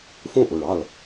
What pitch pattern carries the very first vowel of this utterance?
falling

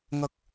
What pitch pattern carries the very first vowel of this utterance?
high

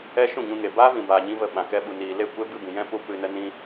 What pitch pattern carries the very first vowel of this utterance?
high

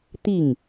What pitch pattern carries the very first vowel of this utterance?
falling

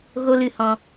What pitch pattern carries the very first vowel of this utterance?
high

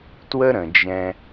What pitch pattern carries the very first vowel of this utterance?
high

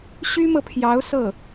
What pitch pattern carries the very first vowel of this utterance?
high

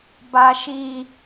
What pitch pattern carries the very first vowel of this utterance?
high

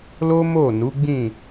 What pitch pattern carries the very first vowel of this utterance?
high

